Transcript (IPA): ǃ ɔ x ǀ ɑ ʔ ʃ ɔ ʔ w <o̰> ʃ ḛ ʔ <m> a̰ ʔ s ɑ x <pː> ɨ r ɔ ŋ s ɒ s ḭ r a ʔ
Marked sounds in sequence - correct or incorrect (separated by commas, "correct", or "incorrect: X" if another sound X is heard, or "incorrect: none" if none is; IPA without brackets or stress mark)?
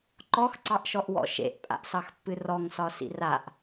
incorrect: ɔ̰, incorrect: pʼ, correct